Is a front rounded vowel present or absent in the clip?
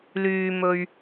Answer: present